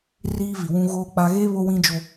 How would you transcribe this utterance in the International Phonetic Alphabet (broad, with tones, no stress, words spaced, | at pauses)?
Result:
riː˦vi˨ wũ˦ɣoː˦k͡pa˦ ɣeː˦ βo˦wĩ˦d͡ʒo˦